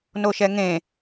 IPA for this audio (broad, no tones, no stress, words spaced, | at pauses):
noʃɛŋẽ